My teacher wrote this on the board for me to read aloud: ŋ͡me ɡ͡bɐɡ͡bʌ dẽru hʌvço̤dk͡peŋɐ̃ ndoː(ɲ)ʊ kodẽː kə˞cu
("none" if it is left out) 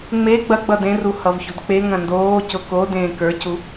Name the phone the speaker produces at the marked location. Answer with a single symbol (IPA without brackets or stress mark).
c